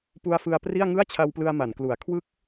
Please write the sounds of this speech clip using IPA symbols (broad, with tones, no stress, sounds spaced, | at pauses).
p u˧ a̯ f ɯ˧ a̯ p r i˥˩ a̯ ŋ ɯ˥˩ a̯ t͡ɕʰ a˧ w p l ɯ˧ a̯ m a˩˦ n k l u˩˦ a̯ kʰ w ɯ˦˥ k̚